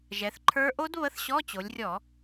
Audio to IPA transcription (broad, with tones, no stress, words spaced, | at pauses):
ʒɛ˩˧θǃʰə˞˦˥ ʔo˦˥d βə˧˥˧θɕɔ˧˥˧t͡ɕo˩˧lʲrʲɔ˧˩˧